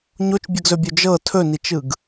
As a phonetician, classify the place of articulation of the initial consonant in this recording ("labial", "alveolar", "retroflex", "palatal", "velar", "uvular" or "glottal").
palatal